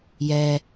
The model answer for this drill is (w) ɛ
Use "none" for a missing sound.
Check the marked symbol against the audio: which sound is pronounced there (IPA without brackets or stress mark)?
j